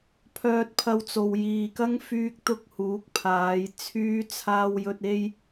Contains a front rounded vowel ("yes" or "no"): yes